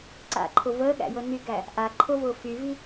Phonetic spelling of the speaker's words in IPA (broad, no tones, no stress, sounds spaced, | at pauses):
ǀ a̰ ǃʰ ʊ v əː ɠ æ̰ j ɤ n y ɡ æ | ʔ a ǃʰ ʊ v ʊː f y v i